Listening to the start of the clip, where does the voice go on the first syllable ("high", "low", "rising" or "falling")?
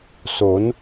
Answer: rising